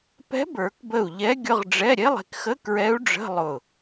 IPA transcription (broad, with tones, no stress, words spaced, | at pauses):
pɛ̤˧˥bə˞˨˩˦kbə˧˩u̯ ʎɛ˧˥ɡʲʊ˧˥˧ʁɖ͡ʐɛ˧˥˧ ɾʲe˧˥˧lˠe̤˧kxə˧˥˧ kɹɛ˧˥u̯ɖ͡ʐə̤˧˥˧ lˠʊ˧˩